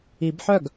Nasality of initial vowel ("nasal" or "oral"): oral